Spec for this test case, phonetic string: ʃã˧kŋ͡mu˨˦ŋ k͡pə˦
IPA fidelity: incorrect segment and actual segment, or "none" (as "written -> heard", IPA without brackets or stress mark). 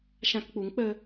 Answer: ŋ͡m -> k͡p